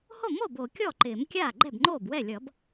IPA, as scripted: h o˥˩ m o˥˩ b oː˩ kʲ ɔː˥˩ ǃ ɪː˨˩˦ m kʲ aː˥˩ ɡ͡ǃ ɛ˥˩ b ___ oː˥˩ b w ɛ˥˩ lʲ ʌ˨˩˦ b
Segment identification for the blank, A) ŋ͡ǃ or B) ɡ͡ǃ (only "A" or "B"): A